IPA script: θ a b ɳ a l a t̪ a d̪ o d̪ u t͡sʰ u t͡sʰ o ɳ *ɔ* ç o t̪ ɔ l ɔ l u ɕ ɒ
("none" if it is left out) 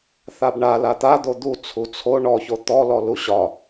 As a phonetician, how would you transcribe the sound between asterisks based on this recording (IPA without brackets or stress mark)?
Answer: ɔ